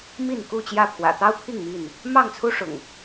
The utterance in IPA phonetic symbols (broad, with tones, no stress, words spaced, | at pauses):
mi˥˨n ku˥˨t͡ɕjä˥˨pʰwä̰˨˩ t̪ɑ˦ʊ̯pʰi˥˨ŋ mi˥˨n | mɑ˥˨ŋt͡sʰu˦ ʂʊ̰˨˩ŋ